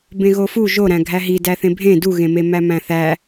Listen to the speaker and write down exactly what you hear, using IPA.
b ẽ ɣ o f u ʒ o ɾ æ̃ ɡʱ æ ɦ i d æ θ ẽ bʱ ẽ d u ɣ ẽ m e m æ m æ̃ θ æ

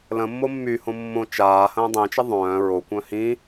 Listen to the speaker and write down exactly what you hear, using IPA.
l ə̃ mː o mː y h õ mː õ t͡ʃ aː h ə̃ː dˤ ĩ t͡ʃ ɐ ðˤ œ̃ː ɹ o kʷ œ̃ h ĩ

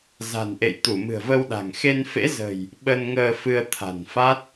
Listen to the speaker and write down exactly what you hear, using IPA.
z a̤˨˩ n ʔ ḛ˧˨ j t̪ u˧˩ m ɨ̤˨˩ ə̯ v ə˧ w ɗ a̤˨˩ ŋ x e˧ n f ḛ˧˥ z ə̤˨˩ j | ɓ ə˧ n ŋ əː˧ f ɨ˧ ə̯ t̪ʰ a̤˨˩ n f a˦˥ t̚

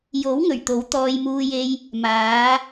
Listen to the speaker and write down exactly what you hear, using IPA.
j o˨˥ w ŋ ɵ˨˩ ɥ t̪ o˨˥ w t̪ ɔː˧ j m uː˧ j e˧ j | m aː˨˧

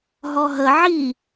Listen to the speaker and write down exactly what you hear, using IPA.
ɦ ɔ ɦ ə ʕ i

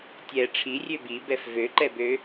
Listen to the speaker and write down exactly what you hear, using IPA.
tʲ ɛ ʈ͡ʂʰ i rʲ ø b i b ɛ f v ø ǃ ɛ b ø

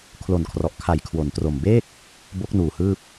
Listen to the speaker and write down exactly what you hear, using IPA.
kʰ l o˨˩ n kʰ r ɔ˨˩ ʔ kʰ a˨˩ j kʰ w o˩˦ n t r o˨˩ m b eː˥˩ k̚ | b o˦˥ k̚ n uː˨˩ h ɯː˥˩ p̚

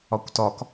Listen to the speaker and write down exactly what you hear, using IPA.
ɒ kʷ t ɒ k

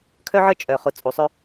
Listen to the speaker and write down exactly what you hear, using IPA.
kʰ œ˦ ʕ ə˞˦ t͡ʃʼ œ˨ χ ʊ˨˦ t͡sʼ u˨ sˤ ø˦

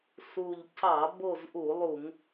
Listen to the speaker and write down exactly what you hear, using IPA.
s u˨˩ ʎ c ɑ˧˩˧ b o˦˨ z ʔ u˧˩˧ lˠ u˧˩˧ ŋ

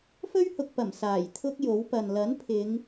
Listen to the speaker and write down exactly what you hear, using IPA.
f ɵ˥ ɥ h ʊ˨ k̚ p ɐ˨˩ m s aː˨˩ j t̪ʰ ʊ˥ k̚ j o˨˥ w p ɐ˨ n l ɐ˨˥ n pʰ ɪ˨˧ ŋ

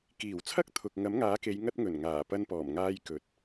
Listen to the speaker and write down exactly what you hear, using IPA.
k iː˨˩ w t͡sʰ ɐ˥ k̚ t̪ʰ ʊ˨ k̚ ŋ ɐ˨˥ m ŋ aː˨˥ k e˨˧ j ŋ ɐ˥ t̚ ŋ ɵ˨˩ n ŋ aː˨˩ p ɐ˥ n p ɔː˨˩ m ŋ aː˥ j k ɵ˨ t̚

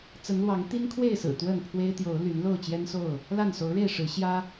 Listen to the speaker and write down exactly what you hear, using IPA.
t͡s ə˨˦ n l w ɑ˨˦ ŋ t̪ i˦ n kʰ w e˥˨ ɪ̯ s ɹ̩˨˩ t̪ w ə˥˨ n pʰ w e˦ ɪ̯ t̪ j o˨˦ ʊ̯ l y˨˦ n l o˥˨ ʊ̯ t͡ɕ j ɛ˦ n s o˥˨ ʊ̯ | l a˥˨ n s o˨˦ ʊ̯ ɻ e˥˨ ɪ̯ ʂ ɻ̩˨˦ ɕ j ä˦

